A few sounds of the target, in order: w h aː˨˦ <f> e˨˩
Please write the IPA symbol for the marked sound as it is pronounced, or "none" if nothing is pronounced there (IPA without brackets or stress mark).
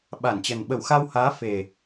f